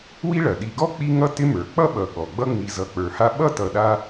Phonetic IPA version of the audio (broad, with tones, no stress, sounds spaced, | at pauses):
w i˥ ɭ ɐ˩ ɗ i˨ ɡ ɔ˥ k͡p i˥ ŋ ʌ˥ t ɪ˦ m ə˞˩ k͡p ʌ˥ ɓ ʌ˨ ɠ ɔ˩ ɡ͡b ʌ˦ ŋ͡m i˨ z ʌ˨ k͡p ə˞˨ h a˥ ɓ ʌ˥ t ʌ˨ ɗ a˦